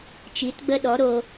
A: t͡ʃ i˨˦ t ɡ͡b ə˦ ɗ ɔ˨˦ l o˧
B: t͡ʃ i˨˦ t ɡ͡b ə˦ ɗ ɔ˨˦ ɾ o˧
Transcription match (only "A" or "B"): B